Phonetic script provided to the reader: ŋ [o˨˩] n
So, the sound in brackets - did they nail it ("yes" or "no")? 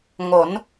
no